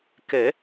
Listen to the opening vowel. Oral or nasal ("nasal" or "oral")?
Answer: oral